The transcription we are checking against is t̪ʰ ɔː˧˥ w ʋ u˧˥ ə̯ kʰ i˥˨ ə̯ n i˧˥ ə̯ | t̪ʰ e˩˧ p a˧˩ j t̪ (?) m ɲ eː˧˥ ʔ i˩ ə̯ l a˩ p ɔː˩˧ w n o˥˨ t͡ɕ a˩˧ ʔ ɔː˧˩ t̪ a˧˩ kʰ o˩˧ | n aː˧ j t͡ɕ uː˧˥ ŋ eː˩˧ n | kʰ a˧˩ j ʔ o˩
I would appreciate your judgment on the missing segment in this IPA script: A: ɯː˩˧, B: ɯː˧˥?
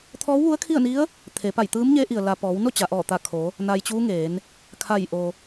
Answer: B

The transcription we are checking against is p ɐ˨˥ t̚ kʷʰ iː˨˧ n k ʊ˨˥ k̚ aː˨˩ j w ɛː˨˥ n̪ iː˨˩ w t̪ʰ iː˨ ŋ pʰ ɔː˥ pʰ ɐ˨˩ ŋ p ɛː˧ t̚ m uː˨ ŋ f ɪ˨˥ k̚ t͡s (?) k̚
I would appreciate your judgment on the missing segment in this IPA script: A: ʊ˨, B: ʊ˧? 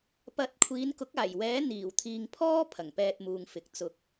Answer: A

